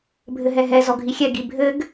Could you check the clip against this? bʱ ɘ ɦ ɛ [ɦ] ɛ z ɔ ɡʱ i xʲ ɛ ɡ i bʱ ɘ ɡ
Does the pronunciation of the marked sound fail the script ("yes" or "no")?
no